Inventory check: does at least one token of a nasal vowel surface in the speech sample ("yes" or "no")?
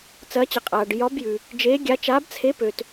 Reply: no